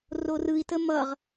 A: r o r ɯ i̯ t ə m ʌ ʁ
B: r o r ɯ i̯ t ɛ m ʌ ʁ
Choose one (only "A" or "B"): A